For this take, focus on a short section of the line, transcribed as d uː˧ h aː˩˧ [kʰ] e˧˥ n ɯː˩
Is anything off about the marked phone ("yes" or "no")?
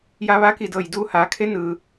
no